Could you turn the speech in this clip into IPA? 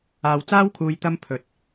aː˧wt͡saː˥wkʰuː˧j t̪ɐ˧mpʰɵ˨˥t̚

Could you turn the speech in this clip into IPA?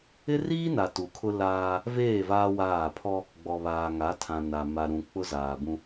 ɪ˦riː˦na˨ tu˨kʰʊ˦laː˦ | veː˦˨ vaː˦waː˦˨ pʰɔ˦ | ɡ͡bɔ˨βaː˨ŋa˨˦tʰã˨ na˨ ma˨ɾũ˨ k͡pʊ˦zaː˨bũ˦

